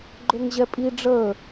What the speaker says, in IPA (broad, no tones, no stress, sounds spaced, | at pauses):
ɡ͡ǃ ø ŋ ʑ ɛ pʼ i ɖ͡ʐ əː